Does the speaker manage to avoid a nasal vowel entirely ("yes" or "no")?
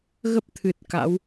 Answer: yes